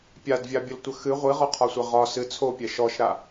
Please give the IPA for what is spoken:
pʲadvʲabʲəltʷə xɨ ʁʷiʁɔqʰɒsʷɛ ʁɒ sɨ t͡sʰopʲɛ ʃɔʃɾa

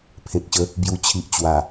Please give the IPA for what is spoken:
pʰẽ˨k̚ɕə˨˦ | bju˨˩ t͡ɕʰi˨ʔt͡ɕwa˨˩

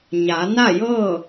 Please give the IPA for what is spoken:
ɲa˩˧ na˥˨jɤː˥˨

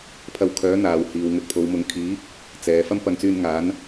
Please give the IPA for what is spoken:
pʰɐ˧wkʰœː˨˥ n̪aː˨whiː˨w ŋɵ˧t̚pʰo˨˧w mʊ˨˧ŋ kʰiː˨˥ | t͡sɛː˨ fɐ˥mpɐ˧ŋt͡syː˧n ŋaː˨˥n

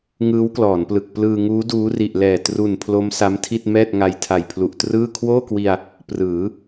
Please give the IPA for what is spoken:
ŋɯː˦˥wklɔː˩˦nplɯ˨˩k̚ plɯː˧ŋuː˦˥ duː˦˥ri˨˩ʔlɛː˨˩ tru˨˩n pʰlo˦˥msa˦˥mtʰi˥˩t̚ mɛː˥˩t̚ŋa˧j tʰa˨˩jpʰlu˨˩ʔtrɯː˥˩ kʰwoː˥˩kwi˧a̯ | prɯː˩˦

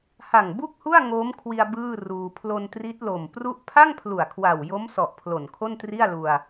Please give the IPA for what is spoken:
ha˨˩ŋ bu˥˩k̚hu˥˩a̯ ŋoː˦˥mkʰwi˧a̯ bɯː˥˩ruː˧ pʰlo˧ntri˦˥t̚lo˨˩m pru˥˩ʔ pʰa˥˩ŋpʰlu˨˩a̯ kʰwa˨˩wjo˦˥msɔ˨˩ʔ pʰlo˨˩nkʰo˥˩ntri˥˩a̯lu˧a̯

